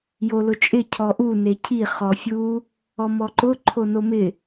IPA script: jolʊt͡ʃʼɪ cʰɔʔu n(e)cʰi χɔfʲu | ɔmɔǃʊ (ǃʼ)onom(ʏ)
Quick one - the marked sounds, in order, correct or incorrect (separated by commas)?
correct, incorrect, incorrect